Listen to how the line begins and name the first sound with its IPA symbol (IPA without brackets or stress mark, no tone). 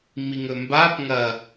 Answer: m